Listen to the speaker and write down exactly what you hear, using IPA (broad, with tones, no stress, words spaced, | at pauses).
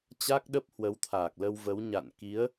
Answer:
t͡ɕa˦˥k̚ɗə˦˥p̚hwə˨˦wt̪ʰaː˨˩k̚ lə˧wvə˨˦wɲa̰˧˨n ki˨˦ə̯